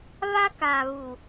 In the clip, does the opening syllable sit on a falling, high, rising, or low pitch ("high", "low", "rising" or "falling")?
high